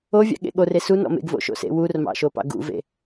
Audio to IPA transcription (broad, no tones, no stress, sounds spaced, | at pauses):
o vʲ ɑ̰ ɠ ḛ ɠ o r e s u n ɔ̰ m ḛ ɡ v o̰ ʃ o̰ s ḛ w u r m ɑ̰ ʃ o p ɑ̰ ɡ ṵ v ḛ